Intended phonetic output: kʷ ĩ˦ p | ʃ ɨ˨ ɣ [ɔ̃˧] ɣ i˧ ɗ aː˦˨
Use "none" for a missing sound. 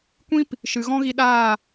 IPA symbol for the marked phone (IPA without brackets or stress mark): ɔ̃˦